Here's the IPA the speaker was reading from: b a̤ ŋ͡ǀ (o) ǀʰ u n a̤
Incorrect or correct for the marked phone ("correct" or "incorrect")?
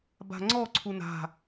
incorrect